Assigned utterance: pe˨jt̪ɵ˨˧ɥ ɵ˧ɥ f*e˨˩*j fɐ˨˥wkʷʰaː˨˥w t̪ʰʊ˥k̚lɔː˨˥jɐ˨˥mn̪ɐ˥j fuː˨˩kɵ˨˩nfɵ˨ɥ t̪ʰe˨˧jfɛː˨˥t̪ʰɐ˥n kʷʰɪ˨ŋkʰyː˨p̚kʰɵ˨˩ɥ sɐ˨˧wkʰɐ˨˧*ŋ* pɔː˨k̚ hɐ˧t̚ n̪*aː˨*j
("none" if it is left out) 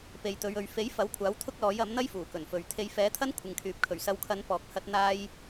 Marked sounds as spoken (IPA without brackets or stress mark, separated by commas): e˨˥, n, aː˧